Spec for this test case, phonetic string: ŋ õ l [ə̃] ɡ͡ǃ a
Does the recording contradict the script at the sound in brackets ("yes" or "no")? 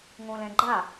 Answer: yes